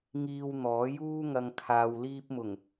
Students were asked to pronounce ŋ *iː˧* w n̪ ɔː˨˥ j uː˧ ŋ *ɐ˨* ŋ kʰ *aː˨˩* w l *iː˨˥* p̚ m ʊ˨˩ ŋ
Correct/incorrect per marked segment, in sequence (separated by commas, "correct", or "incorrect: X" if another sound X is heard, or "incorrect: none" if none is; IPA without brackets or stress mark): correct, correct, incorrect: aː˨, incorrect: iː˧